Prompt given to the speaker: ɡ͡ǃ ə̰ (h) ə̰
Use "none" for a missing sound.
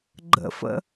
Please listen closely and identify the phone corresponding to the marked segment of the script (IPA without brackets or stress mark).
f